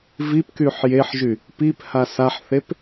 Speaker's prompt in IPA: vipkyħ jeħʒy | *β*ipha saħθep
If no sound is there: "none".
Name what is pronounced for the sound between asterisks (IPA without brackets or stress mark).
p